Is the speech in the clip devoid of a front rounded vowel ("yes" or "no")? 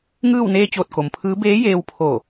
yes